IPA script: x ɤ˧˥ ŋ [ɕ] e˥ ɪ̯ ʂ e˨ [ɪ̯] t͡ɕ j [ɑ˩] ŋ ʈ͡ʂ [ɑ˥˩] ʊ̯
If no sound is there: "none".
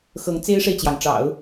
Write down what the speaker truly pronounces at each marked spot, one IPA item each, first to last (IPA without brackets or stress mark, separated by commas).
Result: t͡s, ɪ̯, ɑ˩, ɑ̰˨˩˦